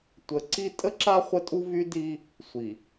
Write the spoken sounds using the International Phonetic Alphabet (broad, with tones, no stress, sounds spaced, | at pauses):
tʷ ə˨˦ ǀ i˦ tʼ ə˦ ǁ a˦ χʷ ə˦ tʼ u˦ v y˦ d i˦ | sʷ i˨